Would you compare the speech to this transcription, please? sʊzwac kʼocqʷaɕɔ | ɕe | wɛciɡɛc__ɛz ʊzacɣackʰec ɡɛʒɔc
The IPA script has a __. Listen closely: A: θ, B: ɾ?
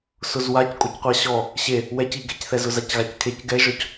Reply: A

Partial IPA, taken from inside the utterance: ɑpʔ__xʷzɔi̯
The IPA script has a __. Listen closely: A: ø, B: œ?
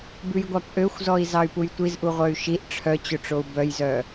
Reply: A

